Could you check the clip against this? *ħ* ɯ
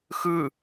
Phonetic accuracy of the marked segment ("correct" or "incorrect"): incorrect